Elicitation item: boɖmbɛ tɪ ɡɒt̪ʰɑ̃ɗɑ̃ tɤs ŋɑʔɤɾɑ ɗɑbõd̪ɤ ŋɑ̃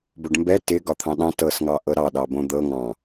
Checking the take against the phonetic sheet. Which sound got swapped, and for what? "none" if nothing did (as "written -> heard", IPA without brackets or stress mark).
none